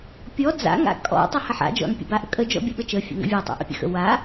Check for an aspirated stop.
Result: absent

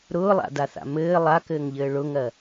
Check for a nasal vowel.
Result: absent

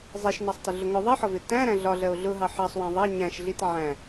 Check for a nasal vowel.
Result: present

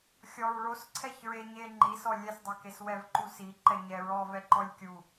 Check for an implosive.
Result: absent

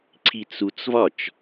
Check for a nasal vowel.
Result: absent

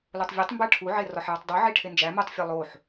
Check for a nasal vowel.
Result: absent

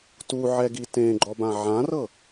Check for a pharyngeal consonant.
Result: present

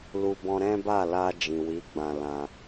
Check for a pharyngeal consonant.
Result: absent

